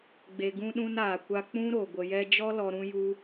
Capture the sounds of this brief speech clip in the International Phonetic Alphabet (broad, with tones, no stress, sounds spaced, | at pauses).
ɡ͡b e˨ ɡ ũ˧ ɗ ũ˧ n aː˨ kʷ a˧ k͡p ũ˧ ɾ o˨ ɡʷ ə˧ j ɛ˦ d͡ʒ ɔ˦ l ɔ˧ ɾ ũ˦ j u˦